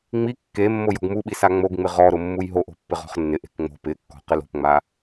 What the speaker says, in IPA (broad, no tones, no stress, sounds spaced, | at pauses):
ŋ͡m i kː e mː o j ɔ̤ ɡ m u ɓ i s a ŋ͡m o ɡ ŋ͡m ɪ ʁ ɔ ɾ ʊ mː u j ɦ o ʔ o̤ pː ɪ ʁ ɔ̤ χ nː ɪ ʔ e̤ k ŋ͡m o̤ p ɪ kː ɔ̤ q ɪ l o̤ p ŋ͡m a